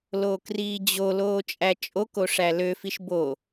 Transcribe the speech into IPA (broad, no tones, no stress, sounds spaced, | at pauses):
l oː k r iː d͡ʑ o l oː t͡ʃʼ æ t͡ʃʼ o k o ʂ æ l ø f i ʃ b o